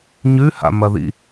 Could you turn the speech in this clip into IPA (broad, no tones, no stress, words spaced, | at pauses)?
ɲʉha̰mɐðḭ